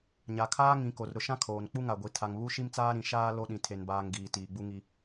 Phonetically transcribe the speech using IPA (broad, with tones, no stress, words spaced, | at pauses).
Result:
ɲa˨kʰaː˦ŋĩ˨˦ko˨r ɾʊ˨ʃã˦ kʰoː˨n k͡pu˦ŋa˨ɡʷi˨ tʰa˨ŋβu˦ʃi˦mt͡saː˦ ɾĩ˨ʃaː˦ lo˦ɗĩ˨ tʰe˦nbaː˦ŋ ɡiː˨ tiː˨ɡ͡bu˦ŋi˦